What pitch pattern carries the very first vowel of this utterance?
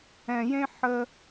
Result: low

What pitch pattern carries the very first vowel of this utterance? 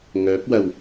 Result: rising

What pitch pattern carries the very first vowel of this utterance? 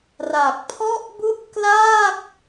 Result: low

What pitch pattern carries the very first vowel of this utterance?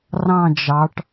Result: falling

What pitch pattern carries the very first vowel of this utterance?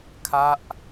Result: falling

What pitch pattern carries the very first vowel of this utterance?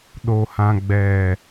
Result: low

